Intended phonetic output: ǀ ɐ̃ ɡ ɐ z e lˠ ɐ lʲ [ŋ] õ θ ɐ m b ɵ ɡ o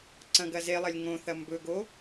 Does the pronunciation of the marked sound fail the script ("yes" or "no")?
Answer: no